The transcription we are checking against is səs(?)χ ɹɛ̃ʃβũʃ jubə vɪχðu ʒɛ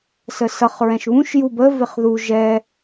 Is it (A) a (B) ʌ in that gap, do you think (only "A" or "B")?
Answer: B